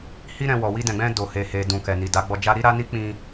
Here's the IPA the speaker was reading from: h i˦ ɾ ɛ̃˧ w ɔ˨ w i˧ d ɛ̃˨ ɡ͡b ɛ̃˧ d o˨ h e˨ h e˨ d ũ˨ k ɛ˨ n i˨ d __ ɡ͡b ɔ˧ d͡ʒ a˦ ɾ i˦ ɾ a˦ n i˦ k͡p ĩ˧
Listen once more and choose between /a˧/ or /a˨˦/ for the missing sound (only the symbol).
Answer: a˨˦